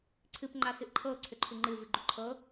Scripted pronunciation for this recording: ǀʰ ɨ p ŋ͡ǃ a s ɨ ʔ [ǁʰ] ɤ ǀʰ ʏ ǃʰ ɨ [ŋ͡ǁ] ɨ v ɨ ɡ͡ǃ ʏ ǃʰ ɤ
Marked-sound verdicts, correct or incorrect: incorrect, incorrect

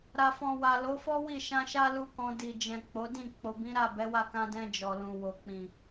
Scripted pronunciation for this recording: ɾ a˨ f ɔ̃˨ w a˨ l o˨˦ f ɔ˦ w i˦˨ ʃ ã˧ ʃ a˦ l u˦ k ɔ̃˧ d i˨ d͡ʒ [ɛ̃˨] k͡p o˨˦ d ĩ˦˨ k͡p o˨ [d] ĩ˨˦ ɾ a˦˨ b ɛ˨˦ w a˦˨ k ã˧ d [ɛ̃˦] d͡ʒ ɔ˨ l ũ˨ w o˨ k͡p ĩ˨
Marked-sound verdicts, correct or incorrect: correct, incorrect, incorrect

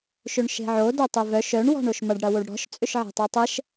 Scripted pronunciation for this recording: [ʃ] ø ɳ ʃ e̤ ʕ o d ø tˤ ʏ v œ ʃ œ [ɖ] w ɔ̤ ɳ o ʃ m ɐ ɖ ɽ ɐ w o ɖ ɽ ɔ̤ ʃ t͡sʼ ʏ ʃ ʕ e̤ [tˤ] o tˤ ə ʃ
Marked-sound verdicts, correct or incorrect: correct, incorrect, correct

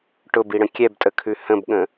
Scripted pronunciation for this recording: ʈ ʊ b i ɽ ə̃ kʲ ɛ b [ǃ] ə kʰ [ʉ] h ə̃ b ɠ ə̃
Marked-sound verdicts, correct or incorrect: incorrect, correct

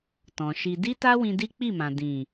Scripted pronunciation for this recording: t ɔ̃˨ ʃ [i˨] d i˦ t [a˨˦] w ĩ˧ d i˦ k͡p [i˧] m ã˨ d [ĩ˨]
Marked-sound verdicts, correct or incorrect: incorrect, incorrect, incorrect, correct

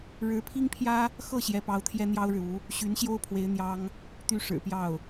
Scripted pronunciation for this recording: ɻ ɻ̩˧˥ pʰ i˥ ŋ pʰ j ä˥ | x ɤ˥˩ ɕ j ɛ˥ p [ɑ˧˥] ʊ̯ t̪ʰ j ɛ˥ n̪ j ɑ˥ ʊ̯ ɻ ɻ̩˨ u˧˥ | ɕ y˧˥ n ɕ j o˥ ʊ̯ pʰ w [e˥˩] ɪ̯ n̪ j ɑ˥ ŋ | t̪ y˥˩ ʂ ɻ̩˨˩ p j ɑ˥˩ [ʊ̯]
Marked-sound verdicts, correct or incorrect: incorrect, incorrect, correct

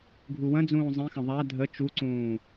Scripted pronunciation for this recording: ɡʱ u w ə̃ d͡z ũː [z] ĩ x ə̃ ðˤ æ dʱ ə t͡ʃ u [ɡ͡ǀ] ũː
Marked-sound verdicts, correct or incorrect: incorrect, incorrect

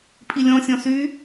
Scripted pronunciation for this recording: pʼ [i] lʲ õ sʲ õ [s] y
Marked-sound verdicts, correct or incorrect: correct, correct

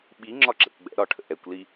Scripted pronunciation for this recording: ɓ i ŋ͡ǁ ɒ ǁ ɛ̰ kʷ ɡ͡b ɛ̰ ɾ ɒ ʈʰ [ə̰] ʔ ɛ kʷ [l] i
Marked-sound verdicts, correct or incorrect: correct, correct

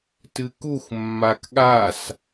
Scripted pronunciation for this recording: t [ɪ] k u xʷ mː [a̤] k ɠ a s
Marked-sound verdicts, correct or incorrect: incorrect, incorrect

